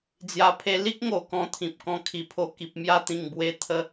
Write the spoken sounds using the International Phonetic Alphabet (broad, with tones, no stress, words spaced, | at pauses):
d͡zja˨˩pʰe˧ li˦k̚ ŋo˨˩kɔ̃˧ t̪ʰĩ˨p̚kɔ̃˧kʰi˨˩pʰo˧ ki˨p̚mja˧t̪ĩ˨˩ŋbwe˧ t̪ʰə˧